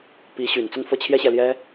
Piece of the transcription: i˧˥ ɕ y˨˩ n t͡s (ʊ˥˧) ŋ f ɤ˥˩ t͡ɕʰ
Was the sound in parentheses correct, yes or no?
yes